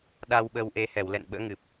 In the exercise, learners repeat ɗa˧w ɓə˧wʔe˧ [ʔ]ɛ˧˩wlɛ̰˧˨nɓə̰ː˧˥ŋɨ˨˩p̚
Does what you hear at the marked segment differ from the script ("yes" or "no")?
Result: yes